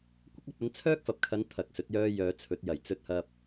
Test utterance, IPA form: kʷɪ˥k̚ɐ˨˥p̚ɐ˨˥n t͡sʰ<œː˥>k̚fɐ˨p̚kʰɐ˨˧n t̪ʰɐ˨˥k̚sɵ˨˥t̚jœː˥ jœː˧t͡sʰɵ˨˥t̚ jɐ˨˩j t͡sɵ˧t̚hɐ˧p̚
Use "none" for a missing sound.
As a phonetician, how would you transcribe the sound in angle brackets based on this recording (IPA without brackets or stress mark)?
œː˥